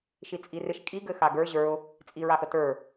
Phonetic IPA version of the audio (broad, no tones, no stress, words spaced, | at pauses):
ʃit͡sʼirɪʃ kʼiɡɘ xaɡə˞ ʑə˞ʊ̯ | t͡sʼiɹaxətə˞